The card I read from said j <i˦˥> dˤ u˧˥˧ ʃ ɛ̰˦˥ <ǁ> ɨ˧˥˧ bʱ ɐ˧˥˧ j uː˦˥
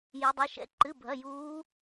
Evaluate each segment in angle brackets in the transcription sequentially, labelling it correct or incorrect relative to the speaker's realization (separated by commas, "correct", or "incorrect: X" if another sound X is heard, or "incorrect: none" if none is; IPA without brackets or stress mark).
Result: correct, incorrect: ǃ